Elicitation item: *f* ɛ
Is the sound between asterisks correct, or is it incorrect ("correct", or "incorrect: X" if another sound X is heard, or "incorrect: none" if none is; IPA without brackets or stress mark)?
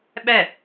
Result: incorrect: ɓ